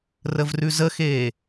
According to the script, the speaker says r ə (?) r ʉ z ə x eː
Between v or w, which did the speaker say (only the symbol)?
v